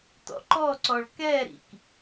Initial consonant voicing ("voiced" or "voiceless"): voiceless